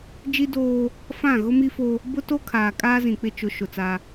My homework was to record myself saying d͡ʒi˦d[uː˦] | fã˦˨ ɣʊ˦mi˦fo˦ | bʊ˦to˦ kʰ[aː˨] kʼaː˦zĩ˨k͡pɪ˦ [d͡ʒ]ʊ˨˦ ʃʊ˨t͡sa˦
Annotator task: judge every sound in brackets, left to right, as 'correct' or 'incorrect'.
incorrect, correct, incorrect

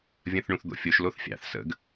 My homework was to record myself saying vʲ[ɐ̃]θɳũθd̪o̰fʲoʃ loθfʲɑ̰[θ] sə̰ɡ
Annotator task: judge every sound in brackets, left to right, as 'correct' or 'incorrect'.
correct, correct

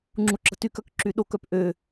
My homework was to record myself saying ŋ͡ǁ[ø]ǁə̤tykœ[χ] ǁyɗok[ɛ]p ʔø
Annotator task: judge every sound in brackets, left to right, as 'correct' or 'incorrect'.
incorrect, incorrect, incorrect

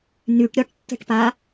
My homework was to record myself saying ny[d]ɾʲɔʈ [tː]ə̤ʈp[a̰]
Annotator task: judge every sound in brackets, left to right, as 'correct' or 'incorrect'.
incorrect, correct, incorrect

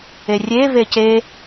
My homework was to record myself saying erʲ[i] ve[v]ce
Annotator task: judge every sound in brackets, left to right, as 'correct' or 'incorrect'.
incorrect, incorrect

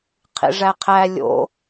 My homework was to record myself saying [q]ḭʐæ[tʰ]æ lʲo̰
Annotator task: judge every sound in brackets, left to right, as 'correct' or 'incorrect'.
incorrect, incorrect

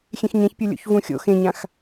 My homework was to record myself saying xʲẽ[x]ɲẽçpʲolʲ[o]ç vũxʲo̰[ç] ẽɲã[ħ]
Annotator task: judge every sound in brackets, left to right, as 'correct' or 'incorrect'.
correct, incorrect, incorrect, incorrect

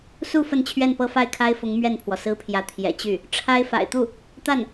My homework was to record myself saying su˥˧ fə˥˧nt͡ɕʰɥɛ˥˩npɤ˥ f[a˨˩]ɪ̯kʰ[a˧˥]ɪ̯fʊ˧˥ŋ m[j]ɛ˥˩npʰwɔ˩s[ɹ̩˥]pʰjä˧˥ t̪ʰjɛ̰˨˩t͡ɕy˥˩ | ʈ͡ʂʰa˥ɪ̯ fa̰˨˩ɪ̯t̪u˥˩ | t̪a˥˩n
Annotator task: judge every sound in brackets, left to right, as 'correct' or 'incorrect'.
incorrect, incorrect, incorrect, correct

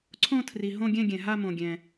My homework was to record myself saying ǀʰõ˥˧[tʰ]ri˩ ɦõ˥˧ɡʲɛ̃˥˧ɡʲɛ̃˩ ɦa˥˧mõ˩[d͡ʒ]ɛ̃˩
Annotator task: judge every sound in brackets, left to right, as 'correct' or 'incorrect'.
correct, incorrect

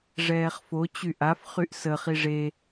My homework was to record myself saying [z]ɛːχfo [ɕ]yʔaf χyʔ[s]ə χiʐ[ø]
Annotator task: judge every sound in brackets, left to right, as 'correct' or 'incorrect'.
incorrect, incorrect, correct, incorrect

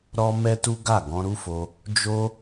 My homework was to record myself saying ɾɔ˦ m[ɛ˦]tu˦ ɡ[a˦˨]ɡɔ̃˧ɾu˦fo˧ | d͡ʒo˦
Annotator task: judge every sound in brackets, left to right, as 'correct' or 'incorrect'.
correct, correct

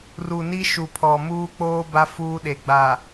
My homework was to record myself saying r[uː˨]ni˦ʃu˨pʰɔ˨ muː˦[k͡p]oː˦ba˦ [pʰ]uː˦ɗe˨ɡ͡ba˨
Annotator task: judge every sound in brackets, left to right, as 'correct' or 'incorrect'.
incorrect, correct, incorrect

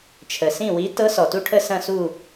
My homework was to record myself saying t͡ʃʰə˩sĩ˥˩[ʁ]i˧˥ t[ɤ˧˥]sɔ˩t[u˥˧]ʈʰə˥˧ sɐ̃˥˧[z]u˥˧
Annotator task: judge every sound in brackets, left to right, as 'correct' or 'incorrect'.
incorrect, correct, correct, incorrect

